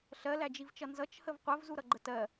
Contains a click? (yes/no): yes